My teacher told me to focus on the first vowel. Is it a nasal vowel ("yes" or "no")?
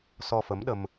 no